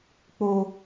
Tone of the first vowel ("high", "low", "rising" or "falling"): high